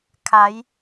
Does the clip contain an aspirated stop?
yes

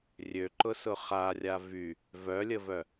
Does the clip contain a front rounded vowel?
yes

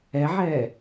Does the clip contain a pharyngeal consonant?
yes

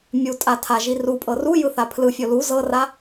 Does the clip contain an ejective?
yes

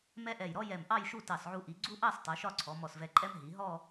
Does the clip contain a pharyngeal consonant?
yes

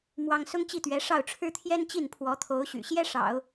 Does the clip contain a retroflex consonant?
yes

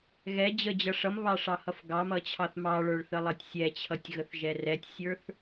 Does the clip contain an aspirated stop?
yes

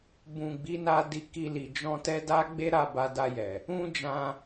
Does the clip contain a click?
no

